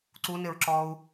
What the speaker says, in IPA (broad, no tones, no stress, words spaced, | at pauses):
ǀunɪɹǁɔːu̯